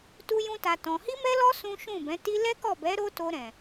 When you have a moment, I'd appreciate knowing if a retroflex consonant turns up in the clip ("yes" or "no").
no